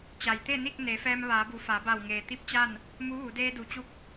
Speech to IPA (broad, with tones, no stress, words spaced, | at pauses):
t͡ɕa˩jt̪e˥˨ni˥˨k̚ ne˩˧fɛː˧m ʋaː˩˧bu˩˧ fa˩˧ba˧˩wŋeː˩ t̪i˥˨p̚t͡ɕa˥˨n | mu˧˥ʋu˩˧ deː˧du˩˧t͡ɕu˧k̚